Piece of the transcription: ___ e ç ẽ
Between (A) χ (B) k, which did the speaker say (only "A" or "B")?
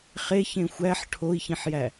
A